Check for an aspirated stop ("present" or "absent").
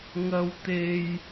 absent